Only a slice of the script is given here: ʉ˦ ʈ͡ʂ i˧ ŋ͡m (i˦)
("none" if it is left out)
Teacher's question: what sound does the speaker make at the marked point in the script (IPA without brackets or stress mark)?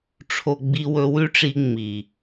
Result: i˨